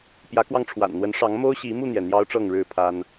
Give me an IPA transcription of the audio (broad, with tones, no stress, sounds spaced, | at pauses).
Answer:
p j ä˨˦ k w ɑ˧ ŋ ʈ͡ʂʰ w a̰˨˩ n n̪ w ə˨˦ n ʂ ɑ˨˦ ŋ m o˦ ʊ̯ ɕ i˨˦ m u˥˨ n̪ j ɛ˩ n̪ j ɑ˦ ʊ̯ ʈ͡ʂ ɤ˥˨ ŋ ɻ ɻ̩˥˨ pʰ a˦ n